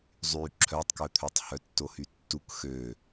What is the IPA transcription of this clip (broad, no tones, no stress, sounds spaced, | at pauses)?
zˤ y ǁʰ œ tˤ k œ t̪ʰ œ tˤ h œ tː o h y tː u k x ø